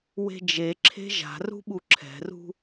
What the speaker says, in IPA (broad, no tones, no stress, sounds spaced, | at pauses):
w e̤ d͡ʒ e ǁʰ e̤ ʒ a̤ r ṳ ɓ u ǁʰ ɛ̤ r ṳ